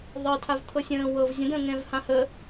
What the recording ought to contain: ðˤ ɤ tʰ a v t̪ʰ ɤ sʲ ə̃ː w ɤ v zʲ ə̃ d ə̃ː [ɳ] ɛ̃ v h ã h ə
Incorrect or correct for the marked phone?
incorrect: ŋ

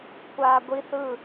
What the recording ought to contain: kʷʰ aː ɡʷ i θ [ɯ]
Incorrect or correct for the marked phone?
correct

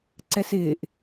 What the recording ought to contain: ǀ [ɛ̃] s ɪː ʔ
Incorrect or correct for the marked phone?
incorrect: ɛ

